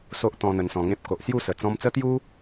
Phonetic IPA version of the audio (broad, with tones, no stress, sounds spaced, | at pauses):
s o˦ ʔ t̪ ɔ̃˧ n̪ ə˧ n s ɔ̃˧ ŋ ẽ˦ p̚ k o˨ ʔ s j u˥˧ s ə˨˩ t͡s ɔ̃˧ m t͡s ə˦ t̪ j u˦